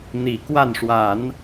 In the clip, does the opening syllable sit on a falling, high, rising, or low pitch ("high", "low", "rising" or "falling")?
low